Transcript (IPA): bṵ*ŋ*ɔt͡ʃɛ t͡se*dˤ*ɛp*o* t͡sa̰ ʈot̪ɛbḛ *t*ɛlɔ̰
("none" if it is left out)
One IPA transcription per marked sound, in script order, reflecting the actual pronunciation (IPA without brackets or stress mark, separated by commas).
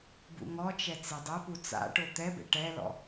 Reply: ŋ, dˤ, u, ʈ